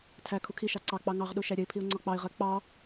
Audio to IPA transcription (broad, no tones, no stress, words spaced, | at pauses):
tʰæ kʰukʰiʃɑ ǀɑk͡pɑ ŋɑʁɗu ʃæɾʲəɪ̯pʰiʊ̯ ŋ͡ǀɒk͡pɑɪ̯ʁɜ k͡pɑ